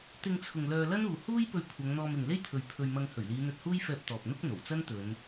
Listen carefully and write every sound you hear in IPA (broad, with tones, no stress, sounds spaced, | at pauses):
t̪ ɪ˧ ŋ t͡sʰ ʊ˨ ŋ l œː˧ l ɐ˥ n uː˨ h uː˥ j p ɵ˧ ɥ kʷʰ ɐ˨˧ ŋ n̪ ɔː˧ m ɪ˨ ŋ l e˥ j t̪ʰ ɵ˨˧ ɥ pʰ ɵ˧ ɥ m ɐ˧ ŋ h ɵ˨˩ ɥ l iː˨˧ n̪ ɵ˧ t̚ h uː˥ j f ɛː˧ p̚ t̪ ɔː˨ p̚ n̪ ʊ˥ k̚ n̪ o˨˩ w t͡s ɐ˥ n t̪ ɵ˨˧ n